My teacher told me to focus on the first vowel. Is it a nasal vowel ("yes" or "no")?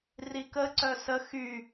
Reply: no